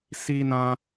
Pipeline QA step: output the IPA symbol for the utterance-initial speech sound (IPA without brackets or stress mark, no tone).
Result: s